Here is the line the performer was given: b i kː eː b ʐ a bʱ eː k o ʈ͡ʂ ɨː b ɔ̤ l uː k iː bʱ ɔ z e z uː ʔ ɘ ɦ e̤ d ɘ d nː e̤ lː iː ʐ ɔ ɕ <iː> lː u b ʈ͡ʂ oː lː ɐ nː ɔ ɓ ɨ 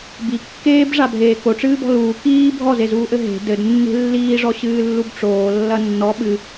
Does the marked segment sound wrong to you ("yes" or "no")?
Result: yes